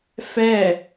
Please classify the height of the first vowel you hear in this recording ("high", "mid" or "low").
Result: mid